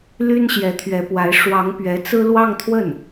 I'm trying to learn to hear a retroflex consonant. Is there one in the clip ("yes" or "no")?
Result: yes